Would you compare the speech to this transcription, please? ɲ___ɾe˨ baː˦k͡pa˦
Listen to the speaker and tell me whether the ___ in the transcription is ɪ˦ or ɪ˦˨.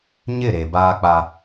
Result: ɪ˦˨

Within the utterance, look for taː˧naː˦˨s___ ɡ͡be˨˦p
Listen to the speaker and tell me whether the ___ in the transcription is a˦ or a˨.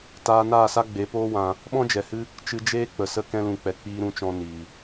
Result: a˦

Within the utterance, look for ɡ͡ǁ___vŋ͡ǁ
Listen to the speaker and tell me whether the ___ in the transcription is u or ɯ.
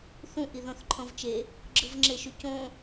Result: ɯ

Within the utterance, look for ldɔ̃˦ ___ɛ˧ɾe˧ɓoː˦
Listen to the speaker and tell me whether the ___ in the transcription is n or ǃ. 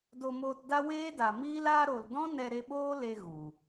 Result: n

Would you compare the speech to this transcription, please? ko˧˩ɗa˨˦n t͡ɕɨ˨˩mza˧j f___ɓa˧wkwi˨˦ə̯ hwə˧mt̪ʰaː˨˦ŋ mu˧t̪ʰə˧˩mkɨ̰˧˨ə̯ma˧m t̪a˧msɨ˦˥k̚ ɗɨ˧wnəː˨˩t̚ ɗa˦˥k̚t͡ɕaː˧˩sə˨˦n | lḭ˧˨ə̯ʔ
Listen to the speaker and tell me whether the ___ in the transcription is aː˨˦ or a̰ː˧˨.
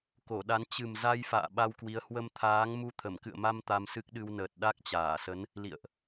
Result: a̰ː˧˨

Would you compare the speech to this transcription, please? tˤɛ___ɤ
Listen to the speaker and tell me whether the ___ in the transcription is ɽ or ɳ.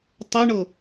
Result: ɳ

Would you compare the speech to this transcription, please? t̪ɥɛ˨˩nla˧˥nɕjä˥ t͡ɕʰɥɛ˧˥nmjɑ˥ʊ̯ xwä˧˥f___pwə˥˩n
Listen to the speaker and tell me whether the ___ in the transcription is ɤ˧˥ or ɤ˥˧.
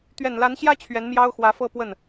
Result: ɤ˥˧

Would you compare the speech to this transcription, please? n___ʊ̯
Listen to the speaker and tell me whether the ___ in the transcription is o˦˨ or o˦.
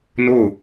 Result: o˦˨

